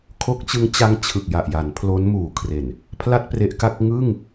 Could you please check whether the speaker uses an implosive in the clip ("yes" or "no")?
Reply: no